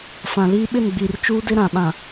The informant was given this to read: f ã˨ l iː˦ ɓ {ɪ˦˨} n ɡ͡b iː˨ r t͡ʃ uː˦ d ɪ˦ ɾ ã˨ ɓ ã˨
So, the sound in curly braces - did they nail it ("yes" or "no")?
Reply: yes